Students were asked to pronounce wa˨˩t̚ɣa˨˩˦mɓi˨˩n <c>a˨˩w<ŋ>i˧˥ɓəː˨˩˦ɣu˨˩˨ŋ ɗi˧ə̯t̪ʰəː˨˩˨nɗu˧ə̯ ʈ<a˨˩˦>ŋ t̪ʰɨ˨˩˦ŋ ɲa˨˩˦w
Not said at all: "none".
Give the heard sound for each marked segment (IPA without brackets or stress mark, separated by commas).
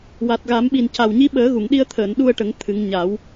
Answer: c, ɲ, ə˨˩˦